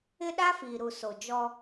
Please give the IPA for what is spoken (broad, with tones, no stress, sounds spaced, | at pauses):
ɪ˦ ɗ a˦ f i˨ ɾ u˨ s o˨ d͡ʒ ɔ˦